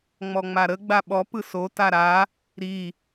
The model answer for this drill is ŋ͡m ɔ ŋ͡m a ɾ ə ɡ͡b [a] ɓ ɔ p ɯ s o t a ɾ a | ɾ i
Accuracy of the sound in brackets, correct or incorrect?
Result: correct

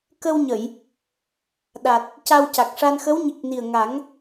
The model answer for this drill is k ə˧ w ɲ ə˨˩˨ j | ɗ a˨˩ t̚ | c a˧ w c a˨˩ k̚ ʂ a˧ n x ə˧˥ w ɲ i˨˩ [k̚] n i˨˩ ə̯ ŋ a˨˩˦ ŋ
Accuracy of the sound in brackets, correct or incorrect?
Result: correct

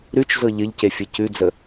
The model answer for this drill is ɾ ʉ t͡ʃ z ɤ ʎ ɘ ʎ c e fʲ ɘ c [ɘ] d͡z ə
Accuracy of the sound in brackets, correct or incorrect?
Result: incorrect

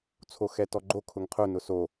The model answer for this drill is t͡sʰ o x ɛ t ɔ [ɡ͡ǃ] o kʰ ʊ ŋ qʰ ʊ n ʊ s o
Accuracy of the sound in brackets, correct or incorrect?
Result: correct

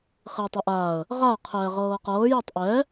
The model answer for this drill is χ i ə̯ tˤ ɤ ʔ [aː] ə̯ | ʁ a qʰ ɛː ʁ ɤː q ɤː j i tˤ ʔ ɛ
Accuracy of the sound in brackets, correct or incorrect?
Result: correct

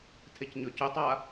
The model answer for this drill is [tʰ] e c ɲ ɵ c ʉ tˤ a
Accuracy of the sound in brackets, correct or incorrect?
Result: correct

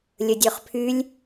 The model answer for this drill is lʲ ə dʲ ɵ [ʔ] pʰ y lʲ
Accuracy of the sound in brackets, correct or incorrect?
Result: incorrect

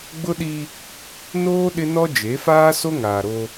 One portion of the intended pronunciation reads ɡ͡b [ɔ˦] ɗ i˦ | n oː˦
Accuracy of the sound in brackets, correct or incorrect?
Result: incorrect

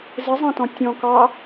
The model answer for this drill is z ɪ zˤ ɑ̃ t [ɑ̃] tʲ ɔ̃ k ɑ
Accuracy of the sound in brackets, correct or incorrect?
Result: incorrect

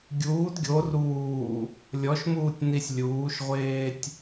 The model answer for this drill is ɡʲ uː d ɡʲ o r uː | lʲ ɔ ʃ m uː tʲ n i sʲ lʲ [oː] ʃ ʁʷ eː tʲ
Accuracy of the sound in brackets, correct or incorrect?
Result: incorrect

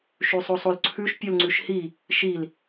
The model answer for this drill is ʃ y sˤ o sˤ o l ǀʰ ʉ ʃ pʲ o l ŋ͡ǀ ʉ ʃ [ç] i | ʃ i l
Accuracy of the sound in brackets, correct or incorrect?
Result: incorrect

